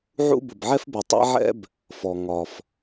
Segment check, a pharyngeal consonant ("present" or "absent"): present